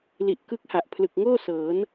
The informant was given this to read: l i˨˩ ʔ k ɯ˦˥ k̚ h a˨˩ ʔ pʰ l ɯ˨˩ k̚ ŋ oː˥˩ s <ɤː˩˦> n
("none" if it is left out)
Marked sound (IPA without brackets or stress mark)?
ɤː˩˦